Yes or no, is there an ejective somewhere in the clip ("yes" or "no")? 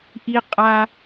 yes